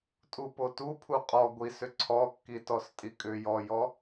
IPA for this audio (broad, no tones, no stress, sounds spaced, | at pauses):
tʼ u p o t u pʰ u qʼ ɔ ɡʷ i s ʏ ǀʰ ɔ kː i t ɔ s tʼ i kʼ ʏ j ɔ j ɔ